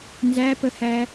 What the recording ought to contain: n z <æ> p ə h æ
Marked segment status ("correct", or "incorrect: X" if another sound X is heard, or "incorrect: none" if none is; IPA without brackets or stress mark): correct